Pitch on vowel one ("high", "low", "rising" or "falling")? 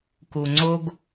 low